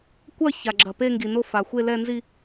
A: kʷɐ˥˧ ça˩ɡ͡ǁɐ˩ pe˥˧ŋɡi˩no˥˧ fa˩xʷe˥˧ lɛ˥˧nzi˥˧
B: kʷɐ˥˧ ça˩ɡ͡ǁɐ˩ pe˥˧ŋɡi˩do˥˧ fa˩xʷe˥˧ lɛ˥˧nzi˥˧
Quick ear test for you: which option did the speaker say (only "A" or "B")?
A